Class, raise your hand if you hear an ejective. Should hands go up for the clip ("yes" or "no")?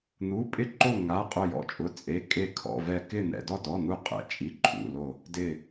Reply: yes